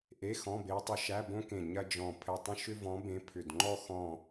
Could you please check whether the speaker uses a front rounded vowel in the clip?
yes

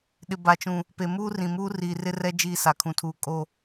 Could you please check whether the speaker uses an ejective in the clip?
yes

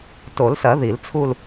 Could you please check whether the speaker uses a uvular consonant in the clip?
no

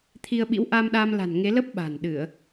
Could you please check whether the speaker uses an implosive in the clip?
yes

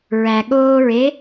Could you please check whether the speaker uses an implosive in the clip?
yes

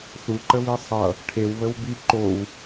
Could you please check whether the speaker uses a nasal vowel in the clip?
no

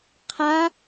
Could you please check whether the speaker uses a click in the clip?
no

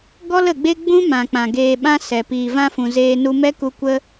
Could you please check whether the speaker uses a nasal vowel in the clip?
yes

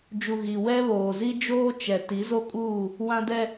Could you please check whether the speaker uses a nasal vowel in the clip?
yes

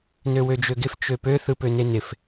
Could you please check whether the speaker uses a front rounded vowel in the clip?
yes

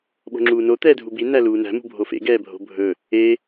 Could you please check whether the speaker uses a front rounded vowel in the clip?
no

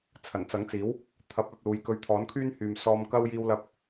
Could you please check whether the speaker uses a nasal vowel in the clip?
no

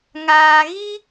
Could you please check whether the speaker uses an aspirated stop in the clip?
no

